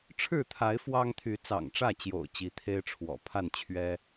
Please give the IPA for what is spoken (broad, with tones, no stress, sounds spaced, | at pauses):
ʈ͡ʂʰ ɻ̩˥˨ t̪ʰ a˨˦ ɪ̯ f w ɑ˦ ŋ t̪ʰ y˨˦ t͡s ɑ̰˨˩ ŋ ʈ͡ʂ ä˥˨ t͡ɕ j o̰˨˩ ʊ̯ t͡ɕ i˨˦ t̪ʰ e˦ ɪ̯ ʈ͡ʂʰ w ɔ̰˨˩ pʰ a˥˨ n t͡ɕʰ ɥ ɛ˦